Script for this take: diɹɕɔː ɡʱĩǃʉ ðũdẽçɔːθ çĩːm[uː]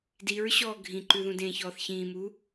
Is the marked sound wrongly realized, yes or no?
no